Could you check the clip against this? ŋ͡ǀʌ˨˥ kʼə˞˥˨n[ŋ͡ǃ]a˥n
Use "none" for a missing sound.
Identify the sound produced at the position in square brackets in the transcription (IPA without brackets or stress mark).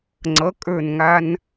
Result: ŋ